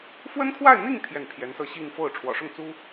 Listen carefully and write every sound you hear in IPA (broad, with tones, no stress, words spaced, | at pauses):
fwə˥nkʰwa˥˧ɪ̯n̪i˥˧ŋ t̪ʰjɛ˥˩npʰjɛ˧˥nsɤ˥˧ ɕi˥˧ŋfo˥˩ʊ̯ ʈ͡ʂʰwɔ̰˨˩ʂʊ˥˩ŋt͡su˥